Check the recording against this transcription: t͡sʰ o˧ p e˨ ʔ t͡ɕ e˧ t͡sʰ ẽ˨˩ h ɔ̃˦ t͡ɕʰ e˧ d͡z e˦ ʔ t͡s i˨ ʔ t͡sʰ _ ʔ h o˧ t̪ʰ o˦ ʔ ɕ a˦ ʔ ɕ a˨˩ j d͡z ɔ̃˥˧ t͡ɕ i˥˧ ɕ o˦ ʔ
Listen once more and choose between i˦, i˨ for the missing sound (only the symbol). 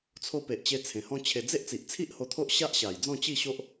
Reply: i˦